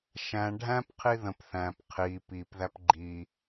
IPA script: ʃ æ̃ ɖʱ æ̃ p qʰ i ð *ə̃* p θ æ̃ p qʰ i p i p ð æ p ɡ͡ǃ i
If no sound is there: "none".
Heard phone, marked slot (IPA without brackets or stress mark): ə̃